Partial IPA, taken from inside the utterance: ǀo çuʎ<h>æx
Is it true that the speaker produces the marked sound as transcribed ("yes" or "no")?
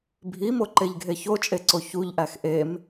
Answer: no